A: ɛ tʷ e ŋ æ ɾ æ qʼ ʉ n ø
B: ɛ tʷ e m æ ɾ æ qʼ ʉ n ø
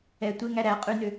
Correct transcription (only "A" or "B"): A